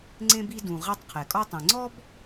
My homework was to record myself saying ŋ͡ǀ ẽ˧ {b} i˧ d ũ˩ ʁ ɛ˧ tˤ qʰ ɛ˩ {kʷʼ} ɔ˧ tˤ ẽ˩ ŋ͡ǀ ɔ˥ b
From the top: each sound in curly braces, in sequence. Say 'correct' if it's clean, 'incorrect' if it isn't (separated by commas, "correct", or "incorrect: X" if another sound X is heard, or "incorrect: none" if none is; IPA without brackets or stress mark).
correct, incorrect: kʼ